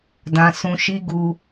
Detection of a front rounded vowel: absent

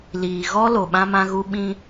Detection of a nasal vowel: present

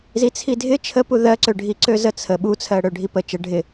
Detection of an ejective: absent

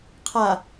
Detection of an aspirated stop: present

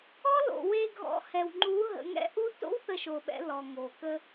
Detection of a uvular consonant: absent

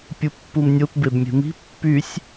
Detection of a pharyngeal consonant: absent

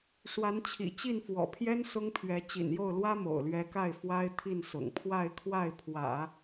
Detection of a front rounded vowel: absent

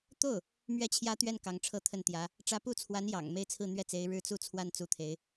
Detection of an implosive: absent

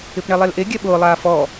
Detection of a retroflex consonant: present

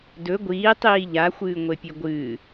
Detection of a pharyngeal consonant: absent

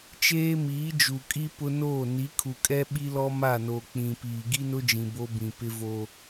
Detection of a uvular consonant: absent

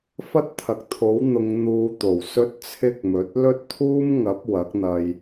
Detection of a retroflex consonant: absent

